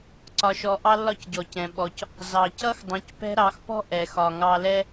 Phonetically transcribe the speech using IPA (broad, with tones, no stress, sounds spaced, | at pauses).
ǀ ɒ˧ ʃ ɔ˧ ʔ ɑ˦ lː ɒ˦ c ɟ ɔ˨ c ɛ̃˨ ɓ ɔ˧ c | z ɑ˨ c ʌ˦ x dˤ ũ˨˦ c p ɛ̤˦ ɾ ɑ˨˦ x p ɔ̤˦ ʔ ɛ˨ x ɒ˨ ŋ ɑ˧ l ɛ˦